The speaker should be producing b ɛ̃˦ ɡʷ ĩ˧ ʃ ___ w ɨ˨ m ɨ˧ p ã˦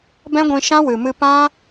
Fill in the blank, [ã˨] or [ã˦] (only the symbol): ã˦